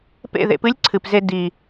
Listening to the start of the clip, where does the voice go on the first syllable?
falling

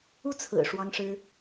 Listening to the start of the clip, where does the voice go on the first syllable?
falling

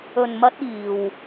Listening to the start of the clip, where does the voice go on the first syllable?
low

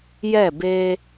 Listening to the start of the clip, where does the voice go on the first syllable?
falling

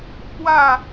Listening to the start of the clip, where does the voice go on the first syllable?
falling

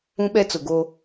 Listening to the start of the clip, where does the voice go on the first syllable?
high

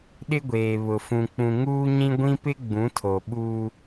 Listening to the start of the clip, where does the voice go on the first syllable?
high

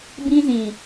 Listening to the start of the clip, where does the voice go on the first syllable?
high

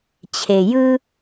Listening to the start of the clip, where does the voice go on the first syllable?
low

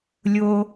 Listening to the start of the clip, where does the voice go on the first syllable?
high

